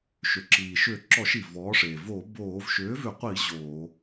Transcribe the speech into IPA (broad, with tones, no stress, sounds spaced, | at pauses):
ʃ ʏ˩ ǁ iː˩ ʃ ʏ˧˩˧ ǁ ɔ˧˩˧ ʃ i˩ v ɔː˩˥ ʂ e˩ v o˧˩˧ b oː˧˩˧ v ʃ ʏː˩˥ v ʏ˧˩˧ qʷ i˧˩˧ ʑ oː˧˩˧